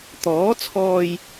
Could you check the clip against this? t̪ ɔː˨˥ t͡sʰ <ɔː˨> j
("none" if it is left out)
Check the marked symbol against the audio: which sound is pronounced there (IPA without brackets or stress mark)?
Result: ɔː˨